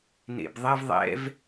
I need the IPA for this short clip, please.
n ḛ b ðˤ ɛ v ðˤ ɛ̰ v

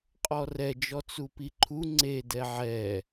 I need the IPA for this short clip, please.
qʼ ɔ r ɛ d͡ʒ ɔ t͡s u p i ǃʰ u ŋ͡ǀ e d ɛ ʕ ɛ

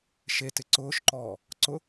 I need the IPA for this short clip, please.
ʃ e t ɪ ǀ ʊː ʃ ǃ ɔː | ǀ ʊ

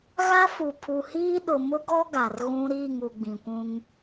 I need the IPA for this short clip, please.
ɣ a˦ f u˨ pʰ u˨ h iː˦ ɗ ʊ˨ m ʊ˦ ɡ ɔ˦ ɡ a˨ r ɣ ũ˦ ɾ iː˦˨ ŋ u˨ ɡ͡b ĩ˨ kʷ ũ˦ ŋ

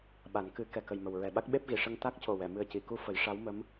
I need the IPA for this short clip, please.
ɓ a˨˩˦ n k ɨ˨˩˦ k ɛ˨˩ k ə˨˩ j m ə˨˩ w ɹ ɛ˨˩ ɓ a˦˥ k̚ ɓ e˦˥ p̚ ɣ i˨˩˨ ʂ ə˧ ŋ t̪ a˦˥ k̚ c o˨˩ w ɛ˨˩˨ m ɨ˨˩ ə̯ c i˨˩˨ k u˧ f ə˨˩˦ j ʂ a˧˥ w m ə˧˥ m

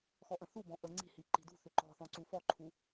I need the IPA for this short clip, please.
x ɔ ʔ ə̃ θ u b ɔ̃ ʔ ə ŋ͡ǀ i̤ h i ǃ i̤ d ṳ θ ʏ ǃ ɔ̤ θ ɔ̃ ǀ u f ɔ ǃʰ u

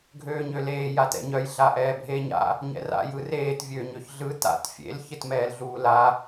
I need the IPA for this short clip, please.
ɡʱ øː ɲ ø l eː j a t ɛ̰ ɲ œ j ɮ a ʔ ɛː bʱ eː ɲ a̰ | ɲ ɛ̰ r a̰ j ɯ r eː t vʲ øː ɲ ø ç ɮ ɯ t a̰ t fʲ ḛ l ç ɪ t m ɛː l ɮ uː l a

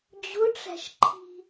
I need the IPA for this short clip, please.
d͡ʑ ʊ ʈ͡ʂ æ̤ ʃ ǃʰ i̤

